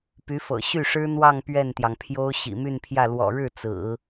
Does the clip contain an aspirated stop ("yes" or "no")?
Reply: yes